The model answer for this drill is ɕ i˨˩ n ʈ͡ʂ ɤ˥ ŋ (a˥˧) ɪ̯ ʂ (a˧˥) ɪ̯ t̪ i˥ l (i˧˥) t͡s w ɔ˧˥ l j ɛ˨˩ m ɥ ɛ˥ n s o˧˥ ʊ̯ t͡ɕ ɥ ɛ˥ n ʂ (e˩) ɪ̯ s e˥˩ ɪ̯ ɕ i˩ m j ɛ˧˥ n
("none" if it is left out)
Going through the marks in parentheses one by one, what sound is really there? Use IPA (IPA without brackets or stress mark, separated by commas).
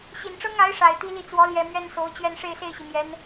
a˧˥, a˨˩, i˥˩, e˥˧